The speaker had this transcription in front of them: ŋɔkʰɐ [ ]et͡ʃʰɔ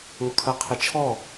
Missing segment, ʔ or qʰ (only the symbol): qʰ